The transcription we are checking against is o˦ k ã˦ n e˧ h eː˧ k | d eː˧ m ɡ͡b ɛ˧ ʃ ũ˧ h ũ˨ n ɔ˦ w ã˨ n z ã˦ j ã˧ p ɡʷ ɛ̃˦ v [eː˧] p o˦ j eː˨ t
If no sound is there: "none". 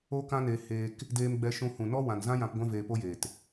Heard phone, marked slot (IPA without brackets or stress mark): eː˧